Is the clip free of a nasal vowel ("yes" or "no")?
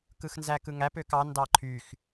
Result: yes